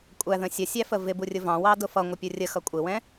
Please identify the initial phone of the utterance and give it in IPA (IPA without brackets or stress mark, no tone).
kʷʼ